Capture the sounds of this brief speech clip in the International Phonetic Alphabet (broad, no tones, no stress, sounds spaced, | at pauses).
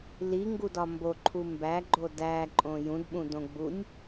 l i ŋ ɡ u d ɒ m b o ǃʰ u m b æ ɡ͡ǃ o d æ ǃʼ õ j ũ d ɓ ũ d õ ɡ͡b u nʲ